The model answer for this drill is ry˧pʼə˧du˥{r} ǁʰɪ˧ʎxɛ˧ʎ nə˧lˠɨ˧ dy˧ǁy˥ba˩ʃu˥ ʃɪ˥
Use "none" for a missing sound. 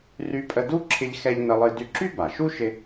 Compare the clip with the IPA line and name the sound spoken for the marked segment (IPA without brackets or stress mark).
none